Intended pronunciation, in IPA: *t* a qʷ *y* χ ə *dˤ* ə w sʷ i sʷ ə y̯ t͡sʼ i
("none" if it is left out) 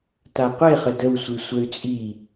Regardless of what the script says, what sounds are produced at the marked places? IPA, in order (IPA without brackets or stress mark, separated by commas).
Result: t, e, d